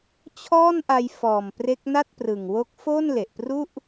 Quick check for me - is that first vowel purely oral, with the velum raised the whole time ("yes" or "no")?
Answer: yes